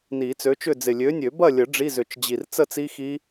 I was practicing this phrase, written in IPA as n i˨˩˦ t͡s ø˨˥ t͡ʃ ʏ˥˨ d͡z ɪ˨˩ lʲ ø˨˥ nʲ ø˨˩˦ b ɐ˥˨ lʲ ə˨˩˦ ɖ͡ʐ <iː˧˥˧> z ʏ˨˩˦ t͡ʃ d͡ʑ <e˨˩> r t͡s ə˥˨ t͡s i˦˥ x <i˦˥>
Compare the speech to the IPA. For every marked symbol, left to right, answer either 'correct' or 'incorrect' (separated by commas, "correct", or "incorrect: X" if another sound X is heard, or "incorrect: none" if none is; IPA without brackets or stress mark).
incorrect: i˧˥˧, incorrect: i˨˩, correct